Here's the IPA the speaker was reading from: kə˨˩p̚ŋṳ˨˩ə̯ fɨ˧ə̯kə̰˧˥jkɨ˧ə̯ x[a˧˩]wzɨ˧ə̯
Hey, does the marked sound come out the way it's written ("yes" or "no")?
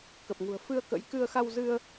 no